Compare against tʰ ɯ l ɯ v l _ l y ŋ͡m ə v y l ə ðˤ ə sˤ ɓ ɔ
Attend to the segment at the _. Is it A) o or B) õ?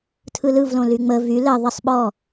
B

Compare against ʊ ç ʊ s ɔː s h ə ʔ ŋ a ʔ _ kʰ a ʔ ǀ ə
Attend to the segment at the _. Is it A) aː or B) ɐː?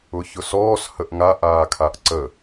A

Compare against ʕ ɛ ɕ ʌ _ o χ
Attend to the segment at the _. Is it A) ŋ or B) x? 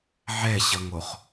A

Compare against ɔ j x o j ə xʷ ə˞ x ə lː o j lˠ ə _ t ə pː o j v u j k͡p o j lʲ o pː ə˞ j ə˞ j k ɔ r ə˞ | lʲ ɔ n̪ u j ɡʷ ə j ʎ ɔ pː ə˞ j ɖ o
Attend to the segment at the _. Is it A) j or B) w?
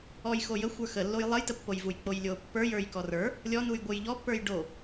A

